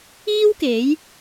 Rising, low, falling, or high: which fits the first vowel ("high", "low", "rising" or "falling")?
high